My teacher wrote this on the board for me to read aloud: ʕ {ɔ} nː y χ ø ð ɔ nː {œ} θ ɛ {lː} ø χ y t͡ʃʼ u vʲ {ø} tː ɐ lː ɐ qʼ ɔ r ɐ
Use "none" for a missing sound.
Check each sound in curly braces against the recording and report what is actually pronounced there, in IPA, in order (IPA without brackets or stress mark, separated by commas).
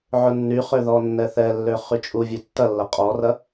ʊ, ɛ, lː, ø